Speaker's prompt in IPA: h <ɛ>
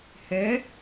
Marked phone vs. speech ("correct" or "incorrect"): correct